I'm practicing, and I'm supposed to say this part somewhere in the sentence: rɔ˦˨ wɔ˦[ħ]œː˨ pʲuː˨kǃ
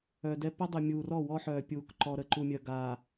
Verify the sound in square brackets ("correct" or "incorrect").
correct